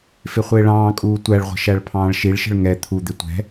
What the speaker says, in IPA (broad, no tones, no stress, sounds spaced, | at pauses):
f ɪ χʷ ɪː ɭ ɑ̃ː kʼ uː tʷ æ ɭ ʁʷ ə̤ ʃ æ ɭ pʰ ɑ̃ː ɭ ʃ i ɭ ʃ ə̤ ɭ ŋ ɛ t̪ʰ u d̪ ɪ tʷ ɛ̤